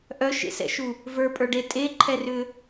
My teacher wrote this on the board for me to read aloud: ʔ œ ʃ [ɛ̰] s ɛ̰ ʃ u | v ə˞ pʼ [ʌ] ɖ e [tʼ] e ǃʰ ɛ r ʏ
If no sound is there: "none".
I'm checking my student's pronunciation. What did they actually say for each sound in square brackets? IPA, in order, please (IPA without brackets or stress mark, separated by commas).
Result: ḛ, ə˞, tʼ